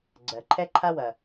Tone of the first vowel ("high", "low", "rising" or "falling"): low